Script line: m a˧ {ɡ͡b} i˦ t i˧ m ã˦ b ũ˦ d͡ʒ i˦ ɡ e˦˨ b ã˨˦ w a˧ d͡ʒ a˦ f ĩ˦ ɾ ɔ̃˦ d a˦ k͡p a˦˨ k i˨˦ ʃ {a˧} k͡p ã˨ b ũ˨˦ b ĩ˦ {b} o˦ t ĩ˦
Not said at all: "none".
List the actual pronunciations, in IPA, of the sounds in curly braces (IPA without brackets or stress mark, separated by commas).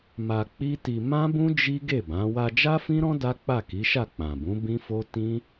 k͡p, a˦˨, f